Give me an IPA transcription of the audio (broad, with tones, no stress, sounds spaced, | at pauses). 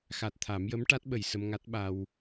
x a˨˩ t̚ t̪ʰ a˨˩˦ m j ə˧˥ m ʈ a˦˥ t̚ ɓ ə˨˩ j s ə˧ m ŋ a˦˥ t̚ ɓ a˧ w